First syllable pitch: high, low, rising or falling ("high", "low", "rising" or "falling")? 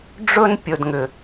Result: high